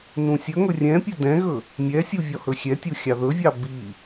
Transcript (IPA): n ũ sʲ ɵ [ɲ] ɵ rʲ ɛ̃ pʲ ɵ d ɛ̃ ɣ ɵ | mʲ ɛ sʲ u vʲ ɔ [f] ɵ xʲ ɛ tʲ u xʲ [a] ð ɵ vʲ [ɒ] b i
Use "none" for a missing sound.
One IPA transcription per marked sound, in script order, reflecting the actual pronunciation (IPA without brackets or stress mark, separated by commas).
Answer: ŋ, h, ɑ, ɑ